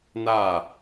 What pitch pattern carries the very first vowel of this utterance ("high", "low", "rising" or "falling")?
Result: falling